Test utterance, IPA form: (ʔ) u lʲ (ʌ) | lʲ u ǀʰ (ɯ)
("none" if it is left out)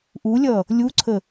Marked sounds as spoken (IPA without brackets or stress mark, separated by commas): ʔ, ʌ, ə